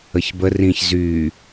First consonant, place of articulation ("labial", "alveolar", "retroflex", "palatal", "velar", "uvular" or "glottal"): palatal